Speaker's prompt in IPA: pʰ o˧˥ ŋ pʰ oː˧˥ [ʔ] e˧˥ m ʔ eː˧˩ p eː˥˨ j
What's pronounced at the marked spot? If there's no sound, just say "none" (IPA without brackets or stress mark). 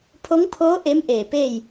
ʔ